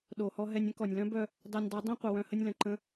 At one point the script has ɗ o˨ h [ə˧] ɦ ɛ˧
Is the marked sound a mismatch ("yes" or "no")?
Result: yes